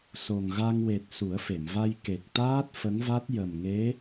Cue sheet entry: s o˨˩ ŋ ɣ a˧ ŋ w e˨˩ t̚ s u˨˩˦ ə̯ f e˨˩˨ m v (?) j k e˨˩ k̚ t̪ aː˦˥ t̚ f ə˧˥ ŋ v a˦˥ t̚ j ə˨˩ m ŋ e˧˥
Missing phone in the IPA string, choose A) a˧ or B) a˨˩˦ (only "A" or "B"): A